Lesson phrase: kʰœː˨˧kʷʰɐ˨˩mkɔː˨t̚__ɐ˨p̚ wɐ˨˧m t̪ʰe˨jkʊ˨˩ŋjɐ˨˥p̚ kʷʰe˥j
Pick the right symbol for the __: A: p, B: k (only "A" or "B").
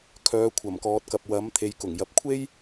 B